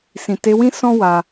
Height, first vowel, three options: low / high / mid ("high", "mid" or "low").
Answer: high